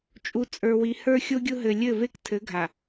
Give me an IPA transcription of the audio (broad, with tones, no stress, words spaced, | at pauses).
t͡ʃʼu˨t͡sʼə˞˨wi˨ hə˞˦xʲo˦ɡʲʊ˦ ɦɘ˨lʲɘ˦˨ ve˦ktʰɘ˨˦ɡʱa˨